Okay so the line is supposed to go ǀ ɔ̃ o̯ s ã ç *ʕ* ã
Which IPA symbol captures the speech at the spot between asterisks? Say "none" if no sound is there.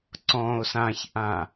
ʔ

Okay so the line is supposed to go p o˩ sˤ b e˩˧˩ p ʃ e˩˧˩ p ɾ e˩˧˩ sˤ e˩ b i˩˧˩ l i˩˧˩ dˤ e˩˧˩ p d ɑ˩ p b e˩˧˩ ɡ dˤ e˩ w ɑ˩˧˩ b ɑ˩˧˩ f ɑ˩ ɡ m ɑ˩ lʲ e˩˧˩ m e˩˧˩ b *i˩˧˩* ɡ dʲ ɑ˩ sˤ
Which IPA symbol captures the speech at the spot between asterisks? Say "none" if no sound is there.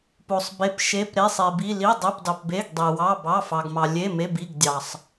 i˩˧˩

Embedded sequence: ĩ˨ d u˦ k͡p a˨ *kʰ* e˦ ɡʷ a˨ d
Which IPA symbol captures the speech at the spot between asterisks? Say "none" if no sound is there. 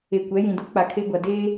kʰ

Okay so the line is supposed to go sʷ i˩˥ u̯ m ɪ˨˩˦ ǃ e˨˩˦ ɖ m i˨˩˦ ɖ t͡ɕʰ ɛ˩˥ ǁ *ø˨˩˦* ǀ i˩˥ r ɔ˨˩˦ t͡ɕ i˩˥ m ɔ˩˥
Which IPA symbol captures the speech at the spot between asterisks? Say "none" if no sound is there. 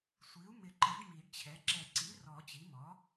ɛ˨˩˦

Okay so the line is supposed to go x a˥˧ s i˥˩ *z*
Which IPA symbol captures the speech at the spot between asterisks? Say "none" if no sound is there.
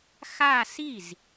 z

